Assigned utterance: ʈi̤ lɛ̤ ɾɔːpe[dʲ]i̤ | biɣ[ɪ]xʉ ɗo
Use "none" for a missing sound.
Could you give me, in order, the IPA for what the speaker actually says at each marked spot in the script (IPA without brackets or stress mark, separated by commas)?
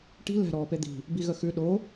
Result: d̪, ə